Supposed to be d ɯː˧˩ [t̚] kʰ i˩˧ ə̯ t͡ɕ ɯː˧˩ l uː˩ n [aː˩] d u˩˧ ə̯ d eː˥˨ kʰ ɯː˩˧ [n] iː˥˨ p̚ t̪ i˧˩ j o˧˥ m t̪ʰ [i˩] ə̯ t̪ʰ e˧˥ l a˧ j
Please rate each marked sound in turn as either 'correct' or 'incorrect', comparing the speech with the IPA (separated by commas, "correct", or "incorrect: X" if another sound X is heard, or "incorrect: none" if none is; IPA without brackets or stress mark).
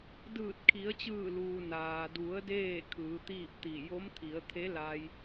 correct, correct, incorrect: t̪, incorrect: i˩˧